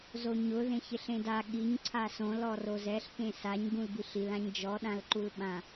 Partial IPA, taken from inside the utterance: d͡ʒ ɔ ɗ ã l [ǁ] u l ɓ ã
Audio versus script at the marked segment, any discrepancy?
yes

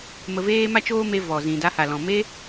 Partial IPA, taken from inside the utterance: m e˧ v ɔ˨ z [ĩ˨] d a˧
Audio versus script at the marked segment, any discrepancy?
no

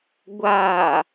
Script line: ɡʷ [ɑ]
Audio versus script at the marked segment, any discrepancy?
yes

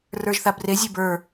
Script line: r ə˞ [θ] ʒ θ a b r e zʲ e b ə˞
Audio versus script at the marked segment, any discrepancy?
yes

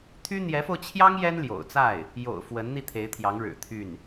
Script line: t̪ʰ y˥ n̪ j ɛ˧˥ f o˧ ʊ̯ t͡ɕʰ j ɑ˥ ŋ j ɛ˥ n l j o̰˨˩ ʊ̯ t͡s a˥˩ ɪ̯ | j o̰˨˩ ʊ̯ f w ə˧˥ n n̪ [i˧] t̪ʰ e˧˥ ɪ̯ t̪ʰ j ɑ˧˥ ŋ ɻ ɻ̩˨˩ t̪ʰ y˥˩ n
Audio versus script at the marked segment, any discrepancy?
no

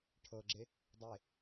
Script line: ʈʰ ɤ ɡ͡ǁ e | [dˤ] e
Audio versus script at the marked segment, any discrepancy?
no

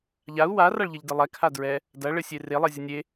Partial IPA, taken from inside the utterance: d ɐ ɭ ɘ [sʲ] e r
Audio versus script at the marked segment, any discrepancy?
no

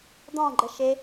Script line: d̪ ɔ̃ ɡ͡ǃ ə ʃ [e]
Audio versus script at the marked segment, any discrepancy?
no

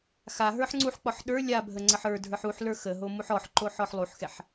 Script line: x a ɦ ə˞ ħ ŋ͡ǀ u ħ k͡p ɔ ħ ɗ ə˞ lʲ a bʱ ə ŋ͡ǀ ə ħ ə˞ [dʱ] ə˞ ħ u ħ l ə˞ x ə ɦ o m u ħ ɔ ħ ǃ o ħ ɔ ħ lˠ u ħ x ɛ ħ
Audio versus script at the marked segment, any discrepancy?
no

